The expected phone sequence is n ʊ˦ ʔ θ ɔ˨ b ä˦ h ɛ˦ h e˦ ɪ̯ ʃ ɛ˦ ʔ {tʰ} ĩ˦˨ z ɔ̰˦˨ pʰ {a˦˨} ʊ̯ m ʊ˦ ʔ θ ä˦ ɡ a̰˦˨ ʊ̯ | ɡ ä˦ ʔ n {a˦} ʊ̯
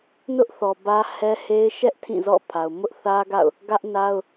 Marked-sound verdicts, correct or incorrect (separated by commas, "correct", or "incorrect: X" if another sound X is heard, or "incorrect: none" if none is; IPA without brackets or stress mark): correct, incorrect: a˨, correct